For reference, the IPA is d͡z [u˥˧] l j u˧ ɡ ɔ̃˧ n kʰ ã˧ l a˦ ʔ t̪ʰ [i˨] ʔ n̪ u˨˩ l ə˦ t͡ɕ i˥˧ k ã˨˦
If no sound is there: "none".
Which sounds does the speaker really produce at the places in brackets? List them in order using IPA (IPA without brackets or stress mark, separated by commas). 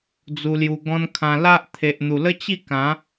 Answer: u˧, e˨